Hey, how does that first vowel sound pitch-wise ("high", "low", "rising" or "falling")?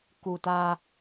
low